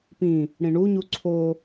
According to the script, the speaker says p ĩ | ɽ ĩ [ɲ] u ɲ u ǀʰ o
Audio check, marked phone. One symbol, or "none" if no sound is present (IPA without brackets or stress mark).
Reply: ɳ